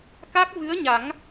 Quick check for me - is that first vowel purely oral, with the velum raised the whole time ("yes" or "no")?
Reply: yes